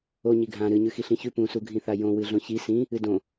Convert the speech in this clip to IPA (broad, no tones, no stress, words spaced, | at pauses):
o ɲiɡʱã ɾɨɲʉ xiɬĩçʉ pũsuɡʱĩθa jõwɨ ɮõçi sĩ | ɨdõ